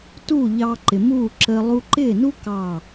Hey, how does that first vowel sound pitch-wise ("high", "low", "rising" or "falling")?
falling